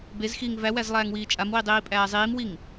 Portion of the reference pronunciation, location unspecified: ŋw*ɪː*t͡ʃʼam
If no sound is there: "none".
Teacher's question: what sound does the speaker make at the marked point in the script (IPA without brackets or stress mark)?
iː